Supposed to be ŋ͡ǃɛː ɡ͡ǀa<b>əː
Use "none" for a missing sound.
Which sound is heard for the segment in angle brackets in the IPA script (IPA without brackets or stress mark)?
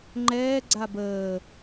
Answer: b